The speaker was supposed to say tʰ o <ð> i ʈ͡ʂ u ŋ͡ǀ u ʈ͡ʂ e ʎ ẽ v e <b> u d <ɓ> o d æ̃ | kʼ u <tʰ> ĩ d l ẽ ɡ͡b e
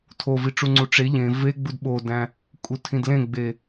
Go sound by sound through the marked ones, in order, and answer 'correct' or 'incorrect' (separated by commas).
incorrect, incorrect, correct, correct